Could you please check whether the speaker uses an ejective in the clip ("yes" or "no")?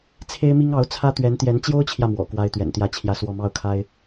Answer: no